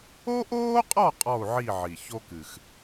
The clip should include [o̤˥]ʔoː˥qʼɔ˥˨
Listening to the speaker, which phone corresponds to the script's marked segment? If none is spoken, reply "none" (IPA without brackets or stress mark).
o˥